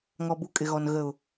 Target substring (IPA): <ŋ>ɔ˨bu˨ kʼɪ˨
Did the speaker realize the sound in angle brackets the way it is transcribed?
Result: yes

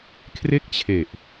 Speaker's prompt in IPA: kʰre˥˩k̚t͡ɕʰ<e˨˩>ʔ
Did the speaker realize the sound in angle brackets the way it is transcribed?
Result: yes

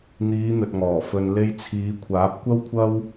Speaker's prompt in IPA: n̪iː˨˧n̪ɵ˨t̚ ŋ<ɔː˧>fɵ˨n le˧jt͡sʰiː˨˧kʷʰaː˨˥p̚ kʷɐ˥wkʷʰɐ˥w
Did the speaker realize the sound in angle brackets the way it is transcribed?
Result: no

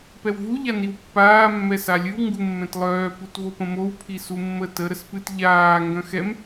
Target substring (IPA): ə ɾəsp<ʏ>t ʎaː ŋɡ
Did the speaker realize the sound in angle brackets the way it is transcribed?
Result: no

